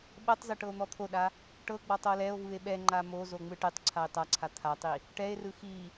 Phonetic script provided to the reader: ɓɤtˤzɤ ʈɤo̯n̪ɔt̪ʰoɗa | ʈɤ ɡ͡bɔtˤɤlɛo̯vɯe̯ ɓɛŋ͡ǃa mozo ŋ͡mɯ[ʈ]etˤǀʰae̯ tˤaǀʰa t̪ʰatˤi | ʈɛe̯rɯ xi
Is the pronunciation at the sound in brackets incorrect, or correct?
correct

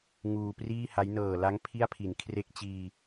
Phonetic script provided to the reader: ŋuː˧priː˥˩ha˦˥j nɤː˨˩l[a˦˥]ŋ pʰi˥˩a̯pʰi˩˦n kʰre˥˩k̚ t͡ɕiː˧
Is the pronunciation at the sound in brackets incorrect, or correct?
correct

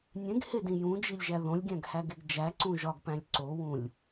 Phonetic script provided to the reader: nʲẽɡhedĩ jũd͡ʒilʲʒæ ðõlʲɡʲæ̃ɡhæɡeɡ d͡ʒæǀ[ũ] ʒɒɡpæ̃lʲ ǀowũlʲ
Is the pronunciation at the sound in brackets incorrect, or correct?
correct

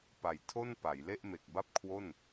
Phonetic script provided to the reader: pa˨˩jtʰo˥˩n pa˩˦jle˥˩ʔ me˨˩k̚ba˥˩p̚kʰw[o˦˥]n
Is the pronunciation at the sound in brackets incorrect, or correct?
incorrect: o˥˩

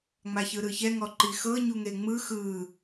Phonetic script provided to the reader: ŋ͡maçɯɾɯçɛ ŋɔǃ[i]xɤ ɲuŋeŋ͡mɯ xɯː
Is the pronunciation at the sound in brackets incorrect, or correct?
correct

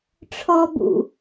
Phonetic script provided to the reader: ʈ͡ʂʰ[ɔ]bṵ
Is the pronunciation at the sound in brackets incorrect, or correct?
correct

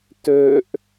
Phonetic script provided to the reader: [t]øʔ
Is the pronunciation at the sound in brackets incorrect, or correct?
correct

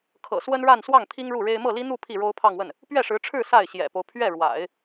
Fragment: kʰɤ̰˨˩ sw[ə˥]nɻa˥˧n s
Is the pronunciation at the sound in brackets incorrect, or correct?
correct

